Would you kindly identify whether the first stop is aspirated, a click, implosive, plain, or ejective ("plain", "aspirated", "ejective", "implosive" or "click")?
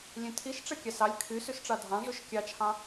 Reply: aspirated